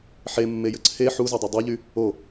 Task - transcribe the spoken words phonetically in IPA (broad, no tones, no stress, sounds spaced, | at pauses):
ħ e mː e j ə ǀʰ e ħ u z u dˤ o dˤ u ʎ y | o